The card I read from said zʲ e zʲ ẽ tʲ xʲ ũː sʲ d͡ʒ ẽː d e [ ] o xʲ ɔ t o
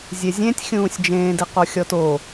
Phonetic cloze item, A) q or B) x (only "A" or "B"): A